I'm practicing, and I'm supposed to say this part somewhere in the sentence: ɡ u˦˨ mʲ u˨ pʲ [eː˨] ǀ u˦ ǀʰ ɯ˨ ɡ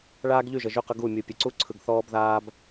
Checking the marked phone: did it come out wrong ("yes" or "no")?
yes